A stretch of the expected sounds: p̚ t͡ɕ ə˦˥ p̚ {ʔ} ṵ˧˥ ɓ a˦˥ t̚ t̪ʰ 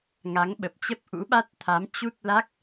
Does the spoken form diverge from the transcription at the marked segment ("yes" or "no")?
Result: no